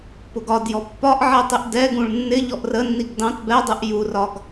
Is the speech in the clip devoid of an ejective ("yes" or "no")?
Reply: yes